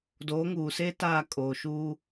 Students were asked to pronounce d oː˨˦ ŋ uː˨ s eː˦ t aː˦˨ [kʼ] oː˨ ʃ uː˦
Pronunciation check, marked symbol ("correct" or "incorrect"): correct